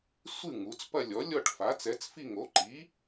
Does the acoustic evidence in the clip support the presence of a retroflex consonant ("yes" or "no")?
yes